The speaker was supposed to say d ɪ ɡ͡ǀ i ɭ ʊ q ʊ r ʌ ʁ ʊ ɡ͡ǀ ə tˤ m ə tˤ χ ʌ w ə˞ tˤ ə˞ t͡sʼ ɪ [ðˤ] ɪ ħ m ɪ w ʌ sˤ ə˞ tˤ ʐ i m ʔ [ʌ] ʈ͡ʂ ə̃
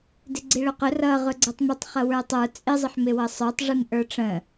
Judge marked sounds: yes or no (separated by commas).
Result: no, no